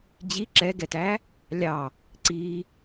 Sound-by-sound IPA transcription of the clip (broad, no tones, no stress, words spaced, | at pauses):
d͡ʑi ǁɛɡɛtæ | lʲɑ | ǀi